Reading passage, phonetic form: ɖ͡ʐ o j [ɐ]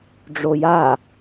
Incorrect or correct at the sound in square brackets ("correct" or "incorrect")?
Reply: incorrect